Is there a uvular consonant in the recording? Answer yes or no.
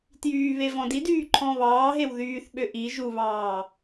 no